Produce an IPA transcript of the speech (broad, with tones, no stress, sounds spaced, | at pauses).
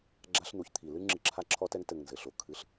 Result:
ɡ͡ǁ a˦ ɬ n̪ u˨ ç t̪ʰ i˨ l ɨ˦ ŋ͡ǁ ɨ˧ ǁʰ a˦ ǁʰ ɔ˦ t ɛ˦ ŋ t ɘ˧ ŋ n z ɘ˨ ɬ o˧ kʰ ɨ˦ ɬ